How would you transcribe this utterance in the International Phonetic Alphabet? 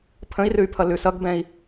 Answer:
pʰ ə̃ i̯ r ʉ y̯ pʰ ʌ l ʉ s ʌ ɡ b ɛ̃ i̯

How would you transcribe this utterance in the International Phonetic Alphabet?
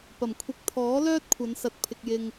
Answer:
p ɐ˨˩ m kʷʰ ɪ˨˥ k̚ t̪ʰ ɔː˨˥ l œː˥ t̚ kʷʰ ɐ˨˧ n s ɐ˨ t̚ pʰ ɪ˨ k̚ j ɪ˨ ŋ

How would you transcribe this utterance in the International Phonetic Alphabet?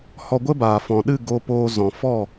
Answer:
h ɔ˧ ɡʷ ə˦ b aː˨ f ɔ̃˨ ɗ ɨ˦˨ ɡ o˧ p oː˧ z ɔ̃˨ f ɔ˦˨

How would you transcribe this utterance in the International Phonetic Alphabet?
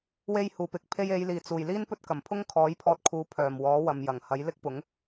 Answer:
w e˧ j h uː˨˩ p ɪ˨ k̚ pʰ e˧ j e˨˧ j l iː˨˩ t͡s uː˨˩ j l iː˥ n p ɵ˥ t̚ k ɐ˨˩ m pʰ ʊ˥ ŋ kʰ ɔː˨˥ j pʰ ɔː˧ t̚ kʰ uː˨˥ pʰ œː˨˩ m w ɔː˨˥ w ɐ˨ m j ɐ˨˩ ŋ h ɐ˨˥ j l ɪ˥ k̚ p ʊ˨˥ ŋ

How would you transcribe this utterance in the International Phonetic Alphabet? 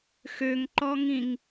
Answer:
x ø ŋ ǃ ɔ ŋ ĩ ŋ

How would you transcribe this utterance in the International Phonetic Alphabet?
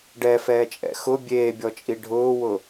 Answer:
ɖ ɛ f ɛː t͡ʃʼ ɛ̰ x ʊ bʲ eː bʲ ɔ t͡ʃʼ i ɖʱ ʊː w ʊ

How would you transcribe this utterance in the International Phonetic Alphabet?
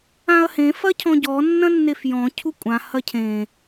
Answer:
ã ɐ̯ h ẽ f ɐ cʰ ɔ̃ ɟ ɔ nː ɐ̃ nː e f j ɔ̃ cʰ u kʷʼ ã h ɐ cʰ ẽ

